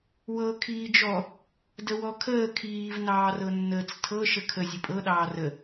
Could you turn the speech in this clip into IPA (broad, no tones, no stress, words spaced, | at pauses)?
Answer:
wɤ kʰiːd͡ʒɔ | dəwɔkʰəː kʰiːv nɑːrɤnːəːt͡stʰɤ ʃəkʰə zʲəpʼɤ ɗɑːrə